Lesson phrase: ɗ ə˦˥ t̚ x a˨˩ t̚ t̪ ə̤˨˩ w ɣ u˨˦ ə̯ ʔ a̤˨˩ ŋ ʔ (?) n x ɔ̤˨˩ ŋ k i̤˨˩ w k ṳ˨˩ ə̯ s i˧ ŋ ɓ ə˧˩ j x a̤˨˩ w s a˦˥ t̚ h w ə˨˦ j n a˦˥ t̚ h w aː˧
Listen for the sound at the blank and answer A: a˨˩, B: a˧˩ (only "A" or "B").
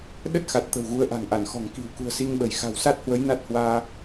B